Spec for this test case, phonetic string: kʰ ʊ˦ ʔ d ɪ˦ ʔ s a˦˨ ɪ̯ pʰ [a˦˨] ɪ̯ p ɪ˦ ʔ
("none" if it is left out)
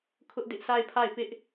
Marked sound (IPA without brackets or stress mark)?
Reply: a˦˨